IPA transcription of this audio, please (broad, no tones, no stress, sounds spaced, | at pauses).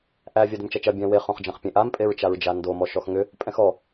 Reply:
ʔ æ vʲ a d ʏ m t͡ʃ ɐ t͡ʃ ɐ bʲ æ̃ w e χ õ χ d͡ʒ ɐ̃ χ pʲ ẽ ʔ a m pʼ e ɹ t͡ʃ a ɹ d͡ʒ a n d o m ɔ ʃ ɔ x ŋ ʏ | pʼ ɛ̃ x ɔ